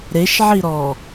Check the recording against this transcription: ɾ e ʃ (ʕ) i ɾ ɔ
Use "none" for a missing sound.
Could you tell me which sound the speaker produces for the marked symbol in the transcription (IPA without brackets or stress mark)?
ʕ